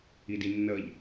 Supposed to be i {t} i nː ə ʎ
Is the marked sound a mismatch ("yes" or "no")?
yes